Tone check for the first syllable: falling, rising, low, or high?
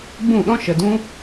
falling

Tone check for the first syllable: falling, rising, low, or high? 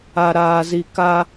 low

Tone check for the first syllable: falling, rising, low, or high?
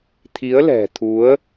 rising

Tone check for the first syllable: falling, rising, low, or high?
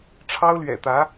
high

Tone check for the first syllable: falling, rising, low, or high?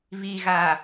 low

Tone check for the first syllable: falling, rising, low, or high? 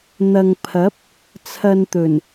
low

